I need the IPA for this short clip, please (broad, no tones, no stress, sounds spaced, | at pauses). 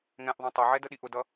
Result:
ŋ ɛ̃ ʔ ðˤ ũ tˤ ɜ ʕ ɛ d ə ɗ i ʔ ʊ d ʌ